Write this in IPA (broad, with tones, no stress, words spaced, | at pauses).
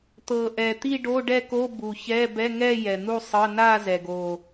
t̪ɤ˨˩ ʔɛ˨˩t̪i˥˧ ɖo˧˥˧ɖɛ˥˧ko˧˥˧ bu˨˩çɛ˧˥˧ bɛ˧˥˧ŋɛ˥˧ jɛ˨˩n̪u˥˧sˤɤ˧˥˧ na˥˧ zɛ˨˩ɡo˨˩